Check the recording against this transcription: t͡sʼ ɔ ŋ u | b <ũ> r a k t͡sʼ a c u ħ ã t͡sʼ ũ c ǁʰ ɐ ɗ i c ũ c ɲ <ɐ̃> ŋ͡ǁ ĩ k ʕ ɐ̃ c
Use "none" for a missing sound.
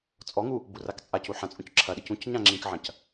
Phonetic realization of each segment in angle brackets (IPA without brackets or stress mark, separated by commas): u, ã